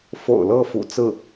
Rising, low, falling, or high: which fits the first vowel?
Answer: low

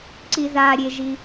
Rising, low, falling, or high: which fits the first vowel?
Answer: low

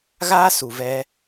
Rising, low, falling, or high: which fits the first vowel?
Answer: high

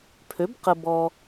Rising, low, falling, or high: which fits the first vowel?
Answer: rising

